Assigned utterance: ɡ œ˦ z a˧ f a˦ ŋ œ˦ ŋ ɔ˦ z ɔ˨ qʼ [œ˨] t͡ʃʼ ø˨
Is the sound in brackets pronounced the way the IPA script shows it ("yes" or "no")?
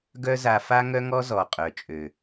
yes